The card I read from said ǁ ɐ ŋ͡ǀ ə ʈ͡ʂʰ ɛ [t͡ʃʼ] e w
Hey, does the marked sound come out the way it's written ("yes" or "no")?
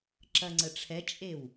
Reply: yes